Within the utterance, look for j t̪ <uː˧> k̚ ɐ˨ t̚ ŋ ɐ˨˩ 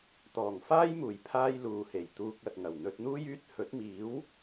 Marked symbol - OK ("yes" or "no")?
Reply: yes